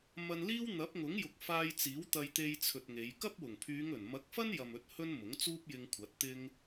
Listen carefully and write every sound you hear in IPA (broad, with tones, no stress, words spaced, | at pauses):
mɐ˧nliː˥w n̪ɐ˨˥p̚ŋʊ˨˥ŋjʊ˨k̚ faː˧jt͡siː˨˥wt̪ɐ˧j t̪e˧jt͡sʰɵ˨t̚ ŋe˨˧j kɐ˥p̚wʊ˨˩ŋpʰyː˨˧ŋɵ˨˩n mɐ˨˥k̚fɐ˥n jɐ˨mɵ˨˥t̚ hɵ˥nmʊ˨˥ŋt͡suː˥p̚ jɪ˧ŋkʷʰɐ˨˥t̚t̪ɪ˥ŋ